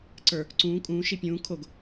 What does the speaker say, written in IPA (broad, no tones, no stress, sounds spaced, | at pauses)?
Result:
ǀ ə˞ | ǀ ũː kʼ ũː ʃ i pʲ ũː kʰ o ɡ